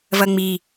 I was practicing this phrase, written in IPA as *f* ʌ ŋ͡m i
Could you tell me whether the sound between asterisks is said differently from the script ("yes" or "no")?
yes